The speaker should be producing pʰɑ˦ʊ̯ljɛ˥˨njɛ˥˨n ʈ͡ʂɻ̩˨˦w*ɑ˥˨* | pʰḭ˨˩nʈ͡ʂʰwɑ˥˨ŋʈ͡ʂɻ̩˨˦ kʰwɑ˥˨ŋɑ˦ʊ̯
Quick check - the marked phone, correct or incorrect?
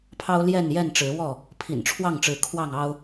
incorrect